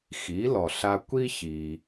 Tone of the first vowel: rising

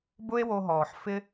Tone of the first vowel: high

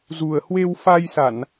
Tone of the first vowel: low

